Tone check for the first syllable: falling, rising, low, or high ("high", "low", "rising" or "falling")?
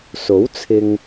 rising